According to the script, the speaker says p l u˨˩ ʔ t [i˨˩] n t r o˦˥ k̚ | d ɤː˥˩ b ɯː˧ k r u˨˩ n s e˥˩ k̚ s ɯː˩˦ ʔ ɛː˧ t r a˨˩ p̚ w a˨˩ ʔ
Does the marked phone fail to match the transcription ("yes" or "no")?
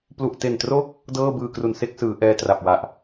yes